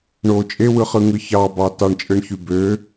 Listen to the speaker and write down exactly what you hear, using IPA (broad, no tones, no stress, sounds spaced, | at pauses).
ɳ o t͡ʃʼ e w ɯ χ ɯ ŋ ɯ ç ɑ b ɑ t ɑ ɳ t͡ʃʼ ɯ ɳ ç y b ø